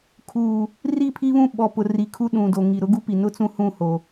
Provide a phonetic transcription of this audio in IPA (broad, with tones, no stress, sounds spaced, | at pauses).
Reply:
kʰ uː˨ | r i˦˨ pʰ i˦ β ũ˦ ɓ ɔ˨ p ʊ˨ r i˨ kʰ u˦ ɗ ũ˨ d o˨ ŋ i˨ ɾ ʊ˦ ɡ u˦ p i˨ n ʊ˦ t͡s ũ˦ h ũ˦˨ h o˨